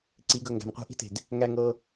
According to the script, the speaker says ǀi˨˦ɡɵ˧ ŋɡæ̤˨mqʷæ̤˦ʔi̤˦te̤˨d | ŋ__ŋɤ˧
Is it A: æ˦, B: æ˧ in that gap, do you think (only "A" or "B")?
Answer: B